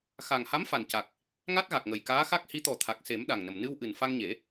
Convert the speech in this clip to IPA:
xa˨˩ŋha˧˥m fa˨˩nca˨˩k̚ | ŋa˦˥t̚ɣa˨˩k̚ŋə˨˩j kaː˧˥xa˦˥k̚hi˧˥ t̪ɔ˨˩ t̪ʰa˨˩k̚se˨˩˦m ɗa˨˩ŋnə˨˩m nɨ˧wʔɨ˨˩n fa˧ŋɲe˨˩˦

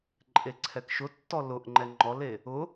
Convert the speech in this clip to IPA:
ǃʼeǀʰɛkʃʊtːɔ lʊʔŋ͡ǃɛ ŋ͡ǃɔle | ʊ

